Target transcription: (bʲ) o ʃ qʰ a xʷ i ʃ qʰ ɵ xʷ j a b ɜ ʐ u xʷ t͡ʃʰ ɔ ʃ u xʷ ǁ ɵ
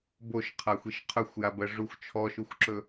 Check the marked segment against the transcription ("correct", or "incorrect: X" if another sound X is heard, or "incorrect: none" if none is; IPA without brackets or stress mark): incorrect: b